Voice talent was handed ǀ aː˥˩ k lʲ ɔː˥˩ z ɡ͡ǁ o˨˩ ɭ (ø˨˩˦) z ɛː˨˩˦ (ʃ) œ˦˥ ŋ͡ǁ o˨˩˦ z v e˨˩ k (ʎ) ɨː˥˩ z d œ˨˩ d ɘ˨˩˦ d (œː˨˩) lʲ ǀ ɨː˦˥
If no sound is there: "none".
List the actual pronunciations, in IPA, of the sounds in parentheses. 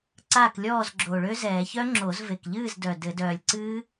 ø˦˥, ç, ʎ, œː˨˩

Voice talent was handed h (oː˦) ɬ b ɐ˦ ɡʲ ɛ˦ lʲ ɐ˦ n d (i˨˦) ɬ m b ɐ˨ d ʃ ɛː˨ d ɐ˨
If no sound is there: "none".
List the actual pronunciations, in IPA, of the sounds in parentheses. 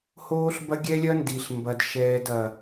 oː˦, i˨

